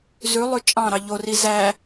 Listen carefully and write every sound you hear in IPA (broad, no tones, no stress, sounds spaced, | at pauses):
z ʉ lˠ ʉ t͡ʃʼ ɑ̃ ɾ ɑ ʎ o r i z æ